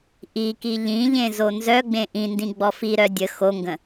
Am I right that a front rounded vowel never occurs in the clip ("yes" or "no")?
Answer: no